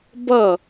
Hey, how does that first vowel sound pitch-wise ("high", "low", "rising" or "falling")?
falling